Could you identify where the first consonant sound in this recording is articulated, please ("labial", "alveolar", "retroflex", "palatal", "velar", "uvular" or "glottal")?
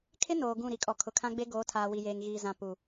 velar